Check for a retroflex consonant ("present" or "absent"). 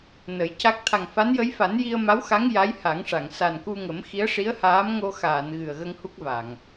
present